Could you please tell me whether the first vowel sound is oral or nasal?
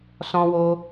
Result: nasal